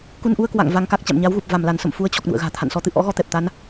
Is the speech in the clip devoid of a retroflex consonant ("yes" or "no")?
yes